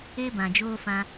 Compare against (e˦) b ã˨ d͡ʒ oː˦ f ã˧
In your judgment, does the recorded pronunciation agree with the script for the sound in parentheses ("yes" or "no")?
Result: yes